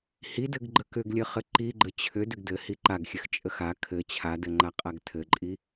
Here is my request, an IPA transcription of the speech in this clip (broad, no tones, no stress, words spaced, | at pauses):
hidɘɡɡ͡ǃə kʏɡlʲəχɘ ǃiɡ͡ǃə t͡ɕʰʏ dʏɡdɘhi ǃaɡxʲɘx t͡ʃʼəxa kʰɘ t͡ɕʰadɘŋ͡ǃa qʼaɡtʰɘǃʼi